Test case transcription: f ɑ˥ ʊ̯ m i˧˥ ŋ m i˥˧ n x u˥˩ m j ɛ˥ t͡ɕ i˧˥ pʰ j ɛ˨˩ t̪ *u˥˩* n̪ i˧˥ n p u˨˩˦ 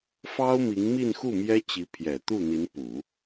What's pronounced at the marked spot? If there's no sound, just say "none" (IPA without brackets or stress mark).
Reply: u˥˩